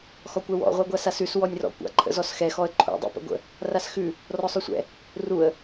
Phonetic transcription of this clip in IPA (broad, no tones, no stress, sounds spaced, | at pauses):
x ɔ kʷ ɛ w ɔ̰ ʁʷ a ɡʷ a s a s ʉ s w ɔ nʲ r ɔ̰ kʷ a̰ ǃʰ ə̰ z ɔ s x ɛ x ɔ ə̯ ǃʰ ṵ dˤ ɛ̰ p ə̰ ɡʷ ə̰ | r a s x ʉ | r ɔ sˤ ʉ sʷ ɛ̰ | r u ə̯